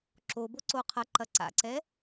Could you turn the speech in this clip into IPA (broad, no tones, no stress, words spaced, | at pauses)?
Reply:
ǁobo ǀoqʰɐǃɐ ǀa̰ǀɛ